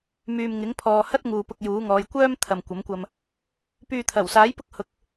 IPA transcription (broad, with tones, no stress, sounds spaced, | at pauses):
m yː˨ m ŋ ɪ˨˥ ŋ pʰ ɔː˨ h ɐ˥ t̚ ŋ uː˨ p ʊ˧ k̚ j uː˨˥ ŋ ɔː˨˧ j kʷ œː˥ m t̪ʰ ɐ˨ m kʷ ɐ˨˥ m kʷ ɐ˧ m | p yː˨ t̪ʰ ɐ˨˩ w s aː˨˥ j p ʊ˥ k̚ h ʊ˧ k̚